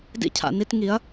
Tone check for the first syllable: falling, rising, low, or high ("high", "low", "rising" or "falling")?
high